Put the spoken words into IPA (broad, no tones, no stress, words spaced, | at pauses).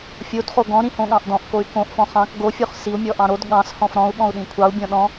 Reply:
fʲod χoɡɔ̃ ɾĩhõɠɑ̃ʔdɔ̃ʔ koy̯kõʔ fɔ̃χɑ̃k ɡo fʲoχsiu̯ mʲɔʔɑ̃ɾod ɠɑ̃s hɔ̃fɾɔ̃u̯ ɠɔ̃u̯ɗĩkʷʰɑu̯ bʲɔ̃ɗɔ̃